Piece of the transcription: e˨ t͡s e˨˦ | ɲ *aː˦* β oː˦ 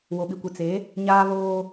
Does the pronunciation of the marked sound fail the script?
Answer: no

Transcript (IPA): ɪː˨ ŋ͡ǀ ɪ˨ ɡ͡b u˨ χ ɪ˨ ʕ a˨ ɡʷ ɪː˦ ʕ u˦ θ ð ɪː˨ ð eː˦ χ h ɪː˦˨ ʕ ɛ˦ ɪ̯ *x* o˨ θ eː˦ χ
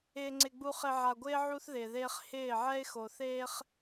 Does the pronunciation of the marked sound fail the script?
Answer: no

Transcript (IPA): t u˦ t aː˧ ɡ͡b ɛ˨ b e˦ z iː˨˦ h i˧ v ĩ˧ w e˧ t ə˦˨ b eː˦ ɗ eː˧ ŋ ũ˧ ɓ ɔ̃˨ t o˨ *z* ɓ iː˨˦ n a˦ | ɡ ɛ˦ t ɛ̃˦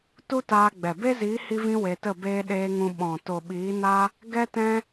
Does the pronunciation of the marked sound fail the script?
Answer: yes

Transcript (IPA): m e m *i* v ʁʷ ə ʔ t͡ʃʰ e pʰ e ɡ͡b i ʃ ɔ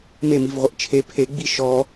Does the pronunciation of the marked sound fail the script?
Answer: no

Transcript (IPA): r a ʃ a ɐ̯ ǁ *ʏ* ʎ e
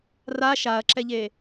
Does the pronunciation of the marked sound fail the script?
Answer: yes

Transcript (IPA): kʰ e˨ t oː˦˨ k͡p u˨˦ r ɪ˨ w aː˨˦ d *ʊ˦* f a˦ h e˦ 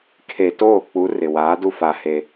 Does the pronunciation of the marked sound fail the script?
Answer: yes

